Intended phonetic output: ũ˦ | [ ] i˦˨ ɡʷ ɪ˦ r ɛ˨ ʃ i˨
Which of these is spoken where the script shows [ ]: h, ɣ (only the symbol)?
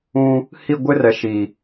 h